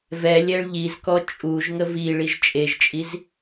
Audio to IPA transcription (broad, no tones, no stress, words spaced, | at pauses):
vɛ lʲɛɭʎizkɔ t͡ʃʼuʒ ŋəviɭiʒ t͡ʃʼeʒt͡ʃʼiz